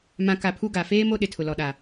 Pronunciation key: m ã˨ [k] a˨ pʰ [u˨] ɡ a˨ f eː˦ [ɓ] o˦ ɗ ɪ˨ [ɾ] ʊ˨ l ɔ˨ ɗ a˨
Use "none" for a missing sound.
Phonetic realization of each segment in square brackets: k, u˦, m, tʰ

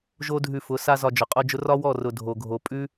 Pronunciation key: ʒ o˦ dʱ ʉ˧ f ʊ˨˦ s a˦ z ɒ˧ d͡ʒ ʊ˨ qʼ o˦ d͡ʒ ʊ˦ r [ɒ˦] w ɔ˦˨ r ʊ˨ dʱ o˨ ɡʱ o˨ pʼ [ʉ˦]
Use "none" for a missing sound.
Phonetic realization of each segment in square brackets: ɒ˦, ʉ˦

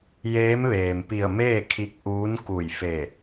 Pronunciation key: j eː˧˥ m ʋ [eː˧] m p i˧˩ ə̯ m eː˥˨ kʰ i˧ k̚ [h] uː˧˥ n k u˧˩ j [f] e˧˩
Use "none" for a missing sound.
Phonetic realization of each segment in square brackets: eː˩, ʔ, f

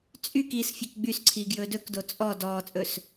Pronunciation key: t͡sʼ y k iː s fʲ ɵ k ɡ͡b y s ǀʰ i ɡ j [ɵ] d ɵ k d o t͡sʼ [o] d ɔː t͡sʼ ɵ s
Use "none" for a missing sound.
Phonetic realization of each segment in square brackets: ɵ, ɔ

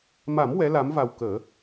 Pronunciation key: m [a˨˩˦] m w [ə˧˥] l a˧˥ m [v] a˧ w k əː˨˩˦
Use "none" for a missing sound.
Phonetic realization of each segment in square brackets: a˨˩˦, ɛ˧˥, v

